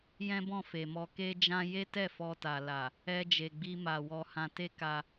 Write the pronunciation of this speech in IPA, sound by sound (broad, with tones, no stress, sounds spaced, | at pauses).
j ɛ̃˦ b ɔ̃˦˨ f e˨ m ɔ˧ k e˦ d͡ʒ ã˦ j e˦ t ɛ˦˨ f ɔ˧ t a˨ l a˨ | ɛ˧ d͡ʒ e˨ ɡ͡b i˧ m a˨ w ɔ˧ h ã˧ t e˦ k a˧